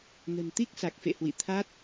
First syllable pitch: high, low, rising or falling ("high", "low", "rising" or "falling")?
low